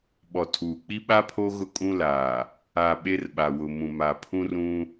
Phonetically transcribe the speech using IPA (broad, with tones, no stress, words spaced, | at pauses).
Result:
ɓɔ˨tʰuː˨ k͡pi˦ɓa˦ pʰo˦ɣʊ˦ kʼũ˦laː˨ | a˨ ɓe˦rɓa˨wʊ˨mũ˨ ma˨pʰũ˦ rũ˦